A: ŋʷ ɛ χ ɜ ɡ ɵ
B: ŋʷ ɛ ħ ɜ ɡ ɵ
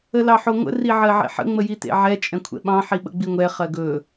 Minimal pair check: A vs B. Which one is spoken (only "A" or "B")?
A